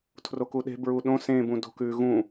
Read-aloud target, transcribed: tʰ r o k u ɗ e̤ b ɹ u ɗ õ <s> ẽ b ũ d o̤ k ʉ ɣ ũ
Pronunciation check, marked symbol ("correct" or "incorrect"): correct